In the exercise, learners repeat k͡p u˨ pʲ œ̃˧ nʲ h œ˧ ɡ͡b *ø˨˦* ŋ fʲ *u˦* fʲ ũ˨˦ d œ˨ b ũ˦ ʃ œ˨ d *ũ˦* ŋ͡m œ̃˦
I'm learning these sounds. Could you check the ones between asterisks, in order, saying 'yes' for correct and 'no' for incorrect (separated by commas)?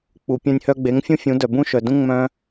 no, no, yes